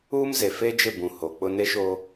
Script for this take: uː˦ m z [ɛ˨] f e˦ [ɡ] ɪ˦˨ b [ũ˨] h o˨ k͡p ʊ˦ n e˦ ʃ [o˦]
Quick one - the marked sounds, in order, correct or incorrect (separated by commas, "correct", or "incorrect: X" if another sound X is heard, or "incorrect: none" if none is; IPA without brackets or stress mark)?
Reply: incorrect: e˨, incorrect: d͡ʒ, correct, correct